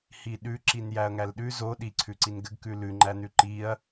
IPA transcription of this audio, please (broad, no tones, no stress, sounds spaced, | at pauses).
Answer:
h i ɗ ʉ ǁ i n j æ ɐ̯ ŋ æ l ɗ ʉ z o ɗ i ǀʰ ʉ ǀ i n ɡ ɘ ɡ k ʉ l ʉ ŋ͡ǃ æ n ʉ ǃ i ɐ̯